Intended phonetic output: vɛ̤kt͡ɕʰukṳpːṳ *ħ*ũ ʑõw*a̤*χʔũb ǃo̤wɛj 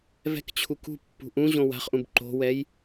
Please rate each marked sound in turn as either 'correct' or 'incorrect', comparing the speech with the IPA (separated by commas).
incorrect, correct